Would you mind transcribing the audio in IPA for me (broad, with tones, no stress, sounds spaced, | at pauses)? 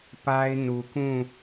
p a˦ ɪ̯ n u˨ k ũ˦˨